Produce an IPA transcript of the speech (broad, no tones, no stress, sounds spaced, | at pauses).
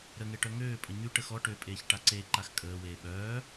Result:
ɾ ə ŋ e ʈ œ ŋ øː pʼ ə ɲ y ʈ ə x ɔ ʈ ø pʼ eː ç ʈ a ǀ e ǃ a x kʼ əː w eː ɓ œː